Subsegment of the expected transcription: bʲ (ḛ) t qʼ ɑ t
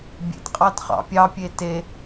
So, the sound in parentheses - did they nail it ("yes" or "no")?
yes